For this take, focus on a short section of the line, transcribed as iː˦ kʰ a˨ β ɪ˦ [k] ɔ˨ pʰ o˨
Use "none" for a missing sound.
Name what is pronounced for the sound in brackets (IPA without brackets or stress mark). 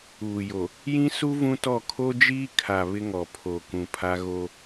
ŋ